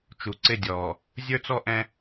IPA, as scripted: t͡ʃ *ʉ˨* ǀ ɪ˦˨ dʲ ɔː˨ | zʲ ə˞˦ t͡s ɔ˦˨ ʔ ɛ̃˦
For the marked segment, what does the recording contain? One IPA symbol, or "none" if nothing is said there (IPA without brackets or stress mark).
u˨